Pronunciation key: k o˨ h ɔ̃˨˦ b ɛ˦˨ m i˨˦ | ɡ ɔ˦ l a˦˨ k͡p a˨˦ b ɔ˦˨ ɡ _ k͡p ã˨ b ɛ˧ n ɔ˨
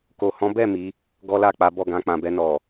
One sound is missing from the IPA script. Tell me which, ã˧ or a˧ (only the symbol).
ã˧